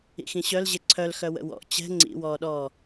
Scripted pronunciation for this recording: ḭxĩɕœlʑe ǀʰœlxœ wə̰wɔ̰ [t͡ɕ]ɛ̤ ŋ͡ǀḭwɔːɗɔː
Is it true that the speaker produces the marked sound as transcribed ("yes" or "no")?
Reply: yes